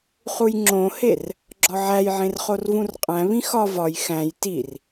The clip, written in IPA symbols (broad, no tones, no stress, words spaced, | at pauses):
χujŋ͡ǁõher | ɡ͡ǁɒʕæjʕẽr χorvũrqʼæ̃ βĩxɒ vɒj xæ̃j tir